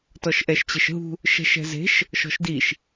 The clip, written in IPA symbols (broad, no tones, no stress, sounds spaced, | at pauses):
t ɔ ʃ ʔ ɛ ʃ t͡ɕ e ʃ ɦ ṳ | ʃ ɛ̤ ʃ ɛ̤ z e̤ ʃ | ʃ ɔ̤ ʃ d i ʃ